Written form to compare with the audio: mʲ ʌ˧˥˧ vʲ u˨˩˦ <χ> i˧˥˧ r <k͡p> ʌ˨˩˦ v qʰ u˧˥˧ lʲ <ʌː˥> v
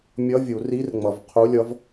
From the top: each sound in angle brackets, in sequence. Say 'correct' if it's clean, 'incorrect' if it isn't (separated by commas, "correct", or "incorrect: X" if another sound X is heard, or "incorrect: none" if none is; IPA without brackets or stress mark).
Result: incorrect: r, incorrect: ŋ͡m, incorrect: ʌ˥